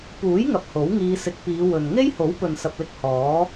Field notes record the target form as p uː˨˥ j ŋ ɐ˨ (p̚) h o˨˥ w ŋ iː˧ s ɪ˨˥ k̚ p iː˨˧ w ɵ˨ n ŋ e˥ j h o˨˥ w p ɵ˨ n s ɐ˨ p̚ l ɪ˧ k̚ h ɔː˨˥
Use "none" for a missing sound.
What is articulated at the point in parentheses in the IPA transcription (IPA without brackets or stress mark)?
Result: p̚